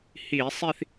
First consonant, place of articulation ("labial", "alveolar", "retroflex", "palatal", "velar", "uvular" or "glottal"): glottal